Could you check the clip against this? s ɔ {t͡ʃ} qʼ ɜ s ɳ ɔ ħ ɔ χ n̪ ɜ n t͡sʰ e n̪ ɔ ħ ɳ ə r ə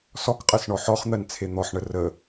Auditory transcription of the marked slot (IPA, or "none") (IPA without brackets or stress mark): k